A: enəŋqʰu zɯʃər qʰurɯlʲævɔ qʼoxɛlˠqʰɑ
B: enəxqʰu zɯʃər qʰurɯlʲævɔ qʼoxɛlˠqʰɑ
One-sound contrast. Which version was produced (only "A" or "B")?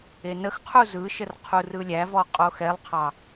B